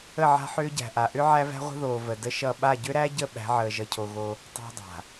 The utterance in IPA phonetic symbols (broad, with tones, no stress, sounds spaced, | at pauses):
ə˦˨ ʕ a̤˦ ħ ʏː˦ ɟ æ̤˨ ʔ a˨ ʔ ʏ˦ ʕ æ˦ v æ̤˦ ʁʷ ə̤˦ ð oː˨ v ə˨ d ə˦ ʃ ʌ˦˨ ɓ a˦˨ ɟ ʏ˦ ɾ æ˦ ɟ ə˦˨ ɓ æ̤˨˦ ʕ əː˨ ʒ ʌ˨ cʰ o˨ ɣ o˦ | tˤ æ̤˦ dˤ a̤˨